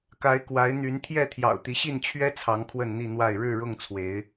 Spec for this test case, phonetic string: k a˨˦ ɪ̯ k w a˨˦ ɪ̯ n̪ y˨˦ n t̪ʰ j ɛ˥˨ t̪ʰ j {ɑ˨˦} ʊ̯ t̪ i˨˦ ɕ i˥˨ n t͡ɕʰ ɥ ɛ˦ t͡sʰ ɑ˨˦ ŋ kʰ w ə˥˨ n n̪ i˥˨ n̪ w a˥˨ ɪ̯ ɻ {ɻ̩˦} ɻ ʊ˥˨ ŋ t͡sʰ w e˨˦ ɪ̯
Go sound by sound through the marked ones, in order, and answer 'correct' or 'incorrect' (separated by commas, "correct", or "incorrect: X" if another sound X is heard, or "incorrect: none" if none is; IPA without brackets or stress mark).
incorrect: ɑ̰˨˩, incorrect: ɻ̩˥˨